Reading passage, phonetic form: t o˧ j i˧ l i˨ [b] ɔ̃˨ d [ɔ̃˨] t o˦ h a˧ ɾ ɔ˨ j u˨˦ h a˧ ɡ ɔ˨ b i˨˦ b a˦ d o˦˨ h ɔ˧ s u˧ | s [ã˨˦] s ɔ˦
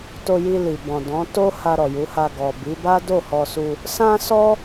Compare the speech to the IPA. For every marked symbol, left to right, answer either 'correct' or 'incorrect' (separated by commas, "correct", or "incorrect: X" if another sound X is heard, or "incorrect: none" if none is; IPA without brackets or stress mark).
correct, incorrect: ɔ̃˨˦, incorrect: ã˦